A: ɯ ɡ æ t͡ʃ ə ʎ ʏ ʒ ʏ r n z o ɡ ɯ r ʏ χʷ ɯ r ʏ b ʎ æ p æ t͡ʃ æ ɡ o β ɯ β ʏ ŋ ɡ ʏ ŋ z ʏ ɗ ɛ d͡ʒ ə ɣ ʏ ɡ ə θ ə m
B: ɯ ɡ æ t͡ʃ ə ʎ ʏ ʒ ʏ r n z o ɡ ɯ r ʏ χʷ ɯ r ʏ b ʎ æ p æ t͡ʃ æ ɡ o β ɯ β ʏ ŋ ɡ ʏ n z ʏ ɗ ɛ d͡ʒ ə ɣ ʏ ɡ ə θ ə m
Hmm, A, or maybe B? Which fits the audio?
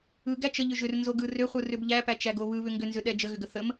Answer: B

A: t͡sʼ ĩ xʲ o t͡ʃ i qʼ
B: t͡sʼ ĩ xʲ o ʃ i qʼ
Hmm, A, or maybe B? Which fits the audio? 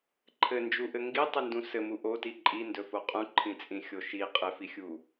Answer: B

